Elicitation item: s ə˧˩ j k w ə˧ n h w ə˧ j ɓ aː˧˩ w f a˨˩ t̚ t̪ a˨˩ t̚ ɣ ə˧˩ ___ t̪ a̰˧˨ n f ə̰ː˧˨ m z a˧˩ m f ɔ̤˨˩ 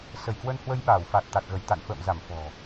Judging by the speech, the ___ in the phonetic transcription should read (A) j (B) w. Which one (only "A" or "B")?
A